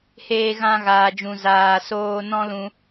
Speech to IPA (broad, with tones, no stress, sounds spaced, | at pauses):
h eː˧ ɣ ã˧ ɣ aː˨ d͡ʒ ũ˨ z aː˨ s oː˧ n ɔ̃˦ l ũ˧